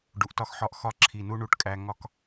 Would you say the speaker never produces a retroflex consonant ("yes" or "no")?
no